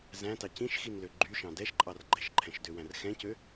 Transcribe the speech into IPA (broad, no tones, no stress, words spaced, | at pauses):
zæ̃tɑ cĩʃxinlø ɡ͡ǃyʃɑ̃ dɛʃǃʼɑr ɡ͡ǃɛʃǃʰɛ̃ʃdøwæ̃r xɛ̃cø